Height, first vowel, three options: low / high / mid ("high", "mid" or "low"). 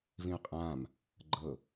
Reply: high